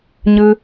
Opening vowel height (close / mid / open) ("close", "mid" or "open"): close